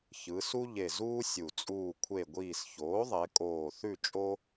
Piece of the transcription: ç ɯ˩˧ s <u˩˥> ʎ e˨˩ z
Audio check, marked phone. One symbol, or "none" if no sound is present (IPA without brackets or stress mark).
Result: u˦